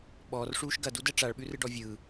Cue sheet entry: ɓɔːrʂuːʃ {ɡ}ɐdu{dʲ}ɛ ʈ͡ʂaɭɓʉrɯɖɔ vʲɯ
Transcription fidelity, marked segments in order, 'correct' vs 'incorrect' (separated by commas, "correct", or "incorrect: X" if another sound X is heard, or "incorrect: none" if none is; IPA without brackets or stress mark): correct, incorrect: d